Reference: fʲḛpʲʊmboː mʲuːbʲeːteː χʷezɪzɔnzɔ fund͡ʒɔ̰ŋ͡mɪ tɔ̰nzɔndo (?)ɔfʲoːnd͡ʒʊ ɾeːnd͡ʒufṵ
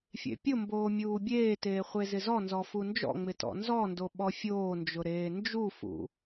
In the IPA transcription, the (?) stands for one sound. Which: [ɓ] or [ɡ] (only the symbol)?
ɓ